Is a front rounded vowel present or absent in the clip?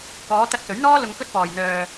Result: present